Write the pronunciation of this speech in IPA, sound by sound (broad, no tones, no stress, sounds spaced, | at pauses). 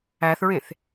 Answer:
æ θ ɹ ẽ θ